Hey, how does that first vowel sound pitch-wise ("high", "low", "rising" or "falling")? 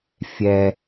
high